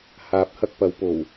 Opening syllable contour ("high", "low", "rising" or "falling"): rising